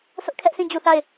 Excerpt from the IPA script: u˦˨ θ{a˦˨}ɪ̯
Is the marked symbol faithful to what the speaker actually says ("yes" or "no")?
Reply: yes